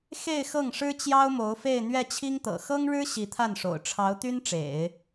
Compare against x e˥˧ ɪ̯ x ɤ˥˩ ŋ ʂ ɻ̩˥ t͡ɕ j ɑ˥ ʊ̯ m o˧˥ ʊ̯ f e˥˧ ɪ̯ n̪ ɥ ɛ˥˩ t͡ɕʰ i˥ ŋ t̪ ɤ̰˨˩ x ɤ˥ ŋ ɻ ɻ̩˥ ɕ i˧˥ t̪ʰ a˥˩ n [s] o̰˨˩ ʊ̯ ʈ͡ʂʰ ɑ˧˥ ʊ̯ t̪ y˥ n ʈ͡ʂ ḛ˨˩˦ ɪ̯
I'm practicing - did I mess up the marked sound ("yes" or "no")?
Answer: yes